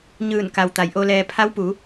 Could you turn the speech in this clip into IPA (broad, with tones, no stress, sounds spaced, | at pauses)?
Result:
ɲ ɯː˧˩ n k a˩ w t̪ a˩˧ j ʔ o˧ l ɛː˧ pʰ a˧˥ w p u˩˧